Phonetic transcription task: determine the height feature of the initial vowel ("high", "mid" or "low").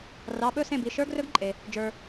low